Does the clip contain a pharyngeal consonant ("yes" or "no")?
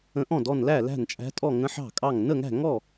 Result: yes